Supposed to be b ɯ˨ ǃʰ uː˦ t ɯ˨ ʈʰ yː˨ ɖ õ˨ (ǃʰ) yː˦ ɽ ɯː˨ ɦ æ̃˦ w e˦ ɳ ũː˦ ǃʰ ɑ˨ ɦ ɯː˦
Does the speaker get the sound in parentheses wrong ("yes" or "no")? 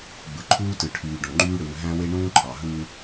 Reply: yes